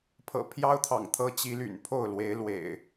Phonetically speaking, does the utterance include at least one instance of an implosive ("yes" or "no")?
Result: no